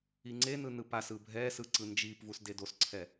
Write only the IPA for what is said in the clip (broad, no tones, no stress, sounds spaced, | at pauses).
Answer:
i ŋ͡ǀ e n ɯ n ɯ p a s ɯ bʱ ɛ s ɯ ǀ ɯ n d͡ʒ i p v u s d e d o s ǀʰ ɛ